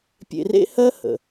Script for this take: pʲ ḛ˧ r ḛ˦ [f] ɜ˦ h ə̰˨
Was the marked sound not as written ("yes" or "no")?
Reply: yes